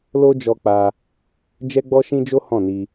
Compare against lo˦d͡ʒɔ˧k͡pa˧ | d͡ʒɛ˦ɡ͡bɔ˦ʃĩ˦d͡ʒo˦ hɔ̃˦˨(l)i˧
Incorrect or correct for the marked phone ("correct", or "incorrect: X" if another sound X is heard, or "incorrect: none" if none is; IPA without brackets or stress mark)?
incorrect: n